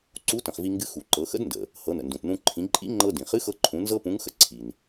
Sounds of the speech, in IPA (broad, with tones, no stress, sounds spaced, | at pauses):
ǀ u˧˥ t ə̃˩ χ v i˧ ŋ ɡ ɨ˧˥ x u˩ ǃ ɤ˩˧ x ə̰˧˥ d n d ə̰˩ | h ɤ˩˧ n ə̰˩ n d ũ˩ t n ũ˧ ǃʰ ĩ˩˧ ǃʼ ḭ˧˥ ŋ͡ǃ ɤ˧ d ĩ˩ χ ɨ˧˥ x ɤ˧ ǃʰ ũ˩˧ n z ɤ˥ p ũ˧˥ ŋ x ə̰˥ ǀʰ i˩ n